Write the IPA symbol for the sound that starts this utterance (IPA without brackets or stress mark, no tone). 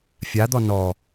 fʲ